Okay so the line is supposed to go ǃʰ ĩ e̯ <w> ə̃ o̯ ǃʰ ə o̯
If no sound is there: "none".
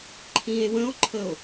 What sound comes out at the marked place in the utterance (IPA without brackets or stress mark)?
w